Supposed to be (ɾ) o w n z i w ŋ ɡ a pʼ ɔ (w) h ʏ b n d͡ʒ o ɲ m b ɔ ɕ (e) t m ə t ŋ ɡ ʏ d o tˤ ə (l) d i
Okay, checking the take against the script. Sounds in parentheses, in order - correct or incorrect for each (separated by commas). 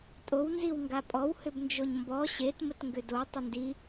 incorrect, correct, correct, incorrect